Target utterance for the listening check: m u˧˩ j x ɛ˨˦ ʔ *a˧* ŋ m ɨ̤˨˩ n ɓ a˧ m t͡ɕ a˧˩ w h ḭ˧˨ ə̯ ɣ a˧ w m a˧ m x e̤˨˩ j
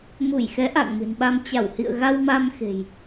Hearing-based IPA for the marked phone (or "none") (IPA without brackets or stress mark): a̰˧˨